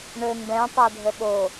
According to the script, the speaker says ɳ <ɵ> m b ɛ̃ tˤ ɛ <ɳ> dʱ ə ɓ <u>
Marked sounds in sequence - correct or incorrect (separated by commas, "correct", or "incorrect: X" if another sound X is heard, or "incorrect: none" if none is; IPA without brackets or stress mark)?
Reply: correct, incorrect: none, incorrect: o